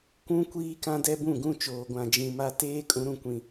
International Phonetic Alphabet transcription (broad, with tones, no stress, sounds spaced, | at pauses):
kʷ ũ˦ kʷ iː˦ k ã˦ d ɛ˦ b ũ˦˨ ɡ ũ˦˨ t͡ʃ oː˨ ɡʷ ã˨ d͡ʒ ĩ˨ m a˦ t eː˦ kʼ ũ˨˦ ɾ ũ˨ kʷ ĩ˨